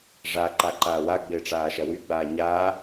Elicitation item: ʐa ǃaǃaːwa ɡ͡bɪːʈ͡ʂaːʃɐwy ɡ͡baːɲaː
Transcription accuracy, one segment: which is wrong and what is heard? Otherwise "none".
none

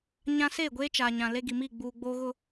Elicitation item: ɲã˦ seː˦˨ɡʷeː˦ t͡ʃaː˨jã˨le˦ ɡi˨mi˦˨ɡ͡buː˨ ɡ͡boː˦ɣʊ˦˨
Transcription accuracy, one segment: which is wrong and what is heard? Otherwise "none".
j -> ɲ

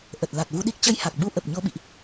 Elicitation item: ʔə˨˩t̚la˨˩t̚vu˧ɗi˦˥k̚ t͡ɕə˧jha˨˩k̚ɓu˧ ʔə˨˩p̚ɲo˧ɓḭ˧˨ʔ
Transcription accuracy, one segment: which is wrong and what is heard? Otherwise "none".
none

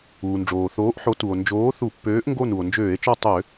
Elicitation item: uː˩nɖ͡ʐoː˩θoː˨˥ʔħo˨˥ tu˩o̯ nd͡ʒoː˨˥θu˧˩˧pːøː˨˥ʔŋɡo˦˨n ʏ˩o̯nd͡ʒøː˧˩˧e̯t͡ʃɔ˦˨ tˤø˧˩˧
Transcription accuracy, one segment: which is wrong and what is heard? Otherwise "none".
ʏ˩ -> u˩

